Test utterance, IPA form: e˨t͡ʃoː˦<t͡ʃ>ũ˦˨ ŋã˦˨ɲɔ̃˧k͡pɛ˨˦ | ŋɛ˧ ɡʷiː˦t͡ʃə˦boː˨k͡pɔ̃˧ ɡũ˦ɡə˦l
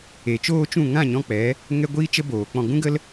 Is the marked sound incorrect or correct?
correct